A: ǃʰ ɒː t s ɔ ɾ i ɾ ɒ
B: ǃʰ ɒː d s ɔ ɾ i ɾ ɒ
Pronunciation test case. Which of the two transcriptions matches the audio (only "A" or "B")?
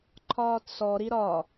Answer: A